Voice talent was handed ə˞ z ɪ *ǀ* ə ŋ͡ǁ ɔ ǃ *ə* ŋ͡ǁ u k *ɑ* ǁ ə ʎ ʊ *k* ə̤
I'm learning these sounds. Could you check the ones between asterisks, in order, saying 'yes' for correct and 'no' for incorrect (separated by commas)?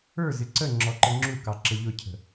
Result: yes, yes, yes, no